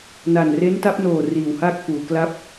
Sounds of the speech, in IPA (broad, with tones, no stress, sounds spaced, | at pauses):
n a˨˩ n r e˦˥ n t a˦˥ p̚ n oː˨˩ r iː˨˩ w h aː˥˩ k̚ f uː˩˦ k l a˦˥ p̚